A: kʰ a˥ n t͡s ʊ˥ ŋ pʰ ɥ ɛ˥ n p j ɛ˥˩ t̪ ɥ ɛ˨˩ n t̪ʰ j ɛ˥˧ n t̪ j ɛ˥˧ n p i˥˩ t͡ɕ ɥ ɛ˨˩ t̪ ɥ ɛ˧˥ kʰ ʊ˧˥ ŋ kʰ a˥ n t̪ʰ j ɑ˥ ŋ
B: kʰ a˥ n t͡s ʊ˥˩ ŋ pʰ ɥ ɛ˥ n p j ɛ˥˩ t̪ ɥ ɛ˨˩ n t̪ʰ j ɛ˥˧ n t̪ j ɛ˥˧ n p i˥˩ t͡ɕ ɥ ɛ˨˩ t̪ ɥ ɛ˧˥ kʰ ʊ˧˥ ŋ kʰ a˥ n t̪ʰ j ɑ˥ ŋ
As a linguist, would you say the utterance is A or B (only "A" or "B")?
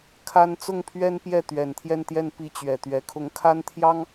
B